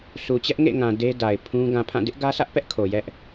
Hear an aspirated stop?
yes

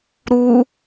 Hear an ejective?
no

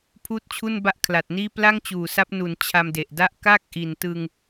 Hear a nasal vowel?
no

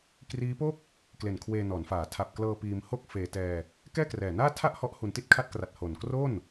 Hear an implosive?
no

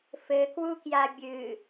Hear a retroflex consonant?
no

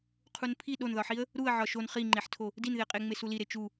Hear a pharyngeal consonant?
yes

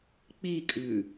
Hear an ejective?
yes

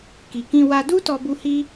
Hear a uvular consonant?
no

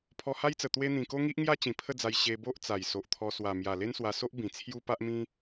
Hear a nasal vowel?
yes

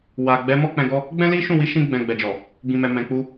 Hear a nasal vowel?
yes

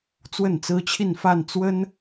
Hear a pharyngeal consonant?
no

